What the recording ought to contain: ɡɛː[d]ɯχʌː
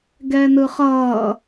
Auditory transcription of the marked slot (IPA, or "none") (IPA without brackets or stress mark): n